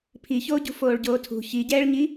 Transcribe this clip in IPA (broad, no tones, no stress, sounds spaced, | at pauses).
pʰ i ç oː ɟ ṳ f oː ɭ ɟ oː tʰ ṳ ç i ɟ ɛː ɭ ɲ i